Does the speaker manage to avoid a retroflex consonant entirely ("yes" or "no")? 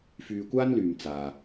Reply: yes